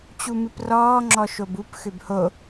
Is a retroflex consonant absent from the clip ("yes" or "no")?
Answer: yes